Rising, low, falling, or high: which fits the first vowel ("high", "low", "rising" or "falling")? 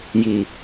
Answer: low